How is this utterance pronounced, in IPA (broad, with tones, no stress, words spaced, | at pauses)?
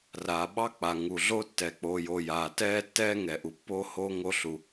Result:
raː˩ɓɑ˥k͡pa˩ ŋu˩ɮo˥ tːɛ˩k͡po˩jo˩ jaː˩tɛː˥tːɛː˥ ŋɛ˩ʔu˩pːoː˥hoː˥ ŋo˥ɬu˩